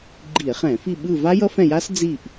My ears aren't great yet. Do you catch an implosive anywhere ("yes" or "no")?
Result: yes